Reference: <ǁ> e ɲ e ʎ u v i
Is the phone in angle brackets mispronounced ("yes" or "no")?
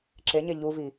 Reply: no